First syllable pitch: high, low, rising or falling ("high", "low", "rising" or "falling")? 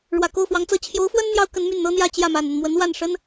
low